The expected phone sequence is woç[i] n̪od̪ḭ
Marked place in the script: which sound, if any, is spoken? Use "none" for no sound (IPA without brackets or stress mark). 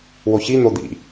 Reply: i